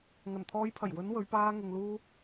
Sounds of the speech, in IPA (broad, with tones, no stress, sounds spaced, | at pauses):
ŋ ɐ˨˩ n t̪ʰ ɔː˨˧ j pʰ ɐ˨˩ j w ɵ˨˧ n w ɵ˨˧ ɥ p aː˧ ŋ ɪ˨ ŋ l uː˧